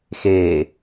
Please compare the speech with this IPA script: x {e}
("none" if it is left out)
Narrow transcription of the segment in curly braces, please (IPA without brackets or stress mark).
eː